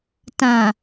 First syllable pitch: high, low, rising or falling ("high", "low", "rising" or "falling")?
low